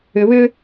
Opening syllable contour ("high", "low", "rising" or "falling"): low